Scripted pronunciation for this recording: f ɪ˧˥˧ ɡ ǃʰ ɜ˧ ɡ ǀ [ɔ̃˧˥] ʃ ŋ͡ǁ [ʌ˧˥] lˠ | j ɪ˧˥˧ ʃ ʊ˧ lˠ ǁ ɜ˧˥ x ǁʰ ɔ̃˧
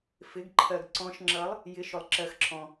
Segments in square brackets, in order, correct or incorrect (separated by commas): correct, correct